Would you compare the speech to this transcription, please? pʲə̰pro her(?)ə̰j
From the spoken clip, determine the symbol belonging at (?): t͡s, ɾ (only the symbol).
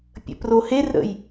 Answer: ɾ